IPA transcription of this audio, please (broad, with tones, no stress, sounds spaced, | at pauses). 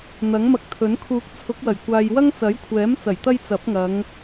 n̪ ɐ˨˥ ŋ m ɐ˧ k̚ t̪ʰ ɵ˨˥ n kʰ uː˨˥ k̚ t͡sʰ ʊ˨˥ k̚ w ɐ˨˩ j kʷ aː˨ j w ɐ˥ ŋ t͡s ɐ˨˥ j kʷʰ ɛː˨˥ m t͡s ɐ˨˩ j t̪ ɐ˧ j t͡s ɐ˨˥ p̚ ŋ ɐ˨˧ ŋ